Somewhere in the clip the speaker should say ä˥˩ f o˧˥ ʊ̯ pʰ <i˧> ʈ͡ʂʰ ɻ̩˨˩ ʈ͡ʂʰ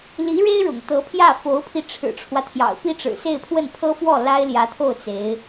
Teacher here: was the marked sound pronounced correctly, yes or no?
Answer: yes